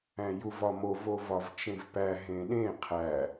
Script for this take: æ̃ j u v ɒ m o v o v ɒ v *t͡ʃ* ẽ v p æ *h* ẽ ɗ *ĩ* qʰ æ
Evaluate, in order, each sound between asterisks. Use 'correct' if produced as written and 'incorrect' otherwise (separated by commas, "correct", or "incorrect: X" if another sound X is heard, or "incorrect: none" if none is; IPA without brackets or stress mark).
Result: correct, incorrect: ɦ, incorrect: ẽ